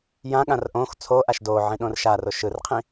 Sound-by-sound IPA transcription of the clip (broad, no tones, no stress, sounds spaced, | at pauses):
j ã ɠ ã r ʔ õ x t͡sʰ o ʔ a ʃ d o ʕ ĩ ɗ õ r ʃ a r o ʃ ɯ r qʰ ĩ